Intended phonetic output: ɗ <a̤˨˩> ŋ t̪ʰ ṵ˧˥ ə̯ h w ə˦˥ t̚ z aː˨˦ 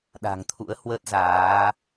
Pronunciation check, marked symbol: correct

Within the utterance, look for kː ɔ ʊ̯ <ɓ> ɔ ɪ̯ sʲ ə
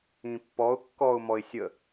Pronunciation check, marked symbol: incorrect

